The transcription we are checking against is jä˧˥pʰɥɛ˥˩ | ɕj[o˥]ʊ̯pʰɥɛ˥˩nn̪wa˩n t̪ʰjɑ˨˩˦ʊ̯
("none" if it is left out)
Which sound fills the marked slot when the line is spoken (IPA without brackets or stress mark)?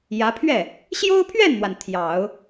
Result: o˥